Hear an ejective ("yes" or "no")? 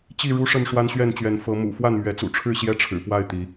no